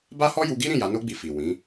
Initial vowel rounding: unrounded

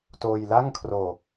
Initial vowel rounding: rounded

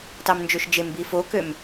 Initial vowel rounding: unrounded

